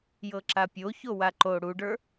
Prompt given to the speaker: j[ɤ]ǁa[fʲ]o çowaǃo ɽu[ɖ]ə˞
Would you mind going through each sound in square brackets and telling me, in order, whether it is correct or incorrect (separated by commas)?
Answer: correct, incorrect, correct